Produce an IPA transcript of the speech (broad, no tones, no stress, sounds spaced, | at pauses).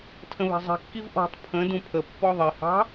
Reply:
tʰ ə̃ β ɛ̤ zˤ i̤ kː i v ʔ ɔ̤ tˤ pʰ ə̃ d ũ pʰ ə pː ɔ ðˤ i h ɑ̤